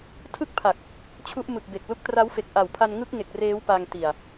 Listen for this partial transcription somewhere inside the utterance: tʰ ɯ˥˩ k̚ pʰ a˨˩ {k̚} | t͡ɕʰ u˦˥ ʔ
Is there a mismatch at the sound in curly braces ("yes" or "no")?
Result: no